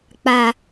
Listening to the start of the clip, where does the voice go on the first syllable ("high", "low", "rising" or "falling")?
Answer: low